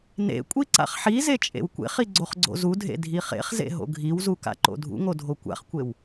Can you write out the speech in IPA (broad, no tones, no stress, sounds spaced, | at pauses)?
n ḛ kʷʼ i ǀ a̰ χ ħ i z e t͡ʃʼ ḛ w kʷ ḛ χ i ɡ͡ǀ o χ ɡ͡ǀ o̰ z u dʱ ḛ dʱ i χ ḛ χ z ḛ ɦ o̰ ɡʱ i w z u k a̰ ǃ o̰ dʱ ṵ ŋ o dʱ o kʷ a̰ χ kʷ e w